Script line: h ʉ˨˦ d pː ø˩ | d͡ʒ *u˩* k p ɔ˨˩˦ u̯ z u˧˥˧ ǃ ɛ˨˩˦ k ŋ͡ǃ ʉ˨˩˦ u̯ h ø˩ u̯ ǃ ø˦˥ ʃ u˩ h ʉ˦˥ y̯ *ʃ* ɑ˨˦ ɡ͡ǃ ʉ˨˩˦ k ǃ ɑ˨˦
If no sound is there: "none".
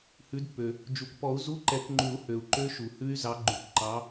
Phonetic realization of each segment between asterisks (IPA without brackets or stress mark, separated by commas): u˩, z